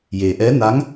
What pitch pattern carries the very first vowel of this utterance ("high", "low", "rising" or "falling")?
low